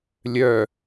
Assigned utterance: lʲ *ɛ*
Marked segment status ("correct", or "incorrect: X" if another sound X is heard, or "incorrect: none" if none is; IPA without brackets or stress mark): incorrect: œ